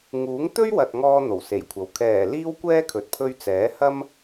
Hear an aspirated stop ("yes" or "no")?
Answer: yes